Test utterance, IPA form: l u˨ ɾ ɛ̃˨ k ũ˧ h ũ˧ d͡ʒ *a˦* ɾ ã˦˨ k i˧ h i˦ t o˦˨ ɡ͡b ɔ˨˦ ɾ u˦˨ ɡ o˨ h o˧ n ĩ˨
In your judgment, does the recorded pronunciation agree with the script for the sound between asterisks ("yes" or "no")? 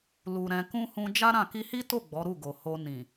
yes